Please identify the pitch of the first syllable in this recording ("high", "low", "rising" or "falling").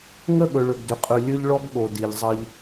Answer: falling